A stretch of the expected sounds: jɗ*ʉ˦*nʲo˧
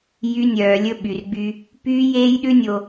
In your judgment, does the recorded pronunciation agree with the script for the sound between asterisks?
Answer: yes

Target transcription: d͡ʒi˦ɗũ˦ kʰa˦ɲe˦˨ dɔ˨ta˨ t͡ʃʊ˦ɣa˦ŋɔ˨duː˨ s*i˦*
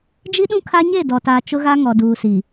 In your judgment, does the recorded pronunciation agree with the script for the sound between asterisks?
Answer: no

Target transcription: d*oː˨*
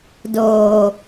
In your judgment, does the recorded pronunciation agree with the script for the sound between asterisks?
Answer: yes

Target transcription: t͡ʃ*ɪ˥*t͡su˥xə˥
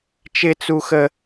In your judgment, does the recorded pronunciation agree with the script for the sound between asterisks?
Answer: yes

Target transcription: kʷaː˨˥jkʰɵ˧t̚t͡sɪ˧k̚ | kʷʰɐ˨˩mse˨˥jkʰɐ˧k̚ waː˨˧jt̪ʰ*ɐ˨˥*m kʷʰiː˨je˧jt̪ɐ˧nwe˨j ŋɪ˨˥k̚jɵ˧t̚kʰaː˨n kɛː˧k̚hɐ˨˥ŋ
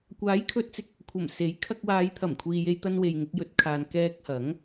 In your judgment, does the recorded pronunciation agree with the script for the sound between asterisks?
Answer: no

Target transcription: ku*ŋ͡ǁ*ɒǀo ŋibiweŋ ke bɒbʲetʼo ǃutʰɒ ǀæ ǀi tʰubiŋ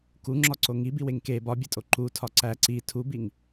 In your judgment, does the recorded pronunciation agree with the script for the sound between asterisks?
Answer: yes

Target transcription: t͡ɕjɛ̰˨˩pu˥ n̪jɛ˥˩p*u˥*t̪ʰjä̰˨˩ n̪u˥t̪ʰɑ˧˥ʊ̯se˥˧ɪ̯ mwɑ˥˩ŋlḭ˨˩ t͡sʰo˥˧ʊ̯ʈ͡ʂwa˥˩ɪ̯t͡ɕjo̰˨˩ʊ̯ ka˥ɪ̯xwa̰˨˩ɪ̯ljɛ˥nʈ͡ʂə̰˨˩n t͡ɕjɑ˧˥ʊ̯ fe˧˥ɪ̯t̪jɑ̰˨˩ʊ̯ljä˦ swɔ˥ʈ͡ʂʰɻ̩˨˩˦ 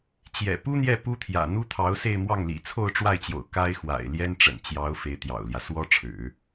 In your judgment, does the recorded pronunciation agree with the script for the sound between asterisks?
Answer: yes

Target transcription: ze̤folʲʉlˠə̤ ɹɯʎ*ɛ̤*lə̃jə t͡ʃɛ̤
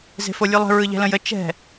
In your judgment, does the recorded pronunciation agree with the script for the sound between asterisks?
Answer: yes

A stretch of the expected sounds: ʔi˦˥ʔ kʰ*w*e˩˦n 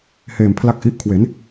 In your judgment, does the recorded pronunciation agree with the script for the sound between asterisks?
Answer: yes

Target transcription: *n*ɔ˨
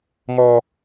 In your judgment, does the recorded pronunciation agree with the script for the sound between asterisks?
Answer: no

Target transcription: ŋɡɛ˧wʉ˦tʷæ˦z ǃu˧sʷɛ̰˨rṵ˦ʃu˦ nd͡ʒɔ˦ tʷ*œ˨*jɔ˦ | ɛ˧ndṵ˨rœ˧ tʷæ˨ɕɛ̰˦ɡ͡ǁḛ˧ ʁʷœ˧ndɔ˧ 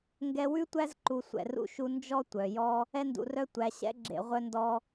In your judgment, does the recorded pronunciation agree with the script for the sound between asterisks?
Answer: yes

